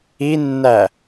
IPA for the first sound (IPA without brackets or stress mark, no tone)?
i